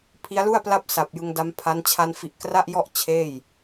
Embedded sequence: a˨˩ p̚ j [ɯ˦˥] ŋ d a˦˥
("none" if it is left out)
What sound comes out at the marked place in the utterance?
ɯ˧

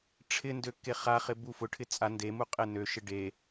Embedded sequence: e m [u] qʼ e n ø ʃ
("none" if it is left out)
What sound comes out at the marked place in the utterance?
u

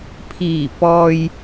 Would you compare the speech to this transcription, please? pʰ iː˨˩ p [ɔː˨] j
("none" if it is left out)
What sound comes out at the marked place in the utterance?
ɔː˨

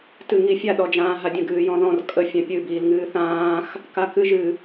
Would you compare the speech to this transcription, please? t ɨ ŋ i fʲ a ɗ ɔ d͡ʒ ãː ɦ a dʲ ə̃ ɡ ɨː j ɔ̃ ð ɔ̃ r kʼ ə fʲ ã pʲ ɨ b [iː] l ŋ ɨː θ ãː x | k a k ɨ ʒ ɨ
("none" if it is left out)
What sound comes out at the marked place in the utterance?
iː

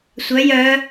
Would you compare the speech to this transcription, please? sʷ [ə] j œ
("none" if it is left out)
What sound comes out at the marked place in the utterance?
œ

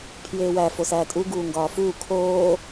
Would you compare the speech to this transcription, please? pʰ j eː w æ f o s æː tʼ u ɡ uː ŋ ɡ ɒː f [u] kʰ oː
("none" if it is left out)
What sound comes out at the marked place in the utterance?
uː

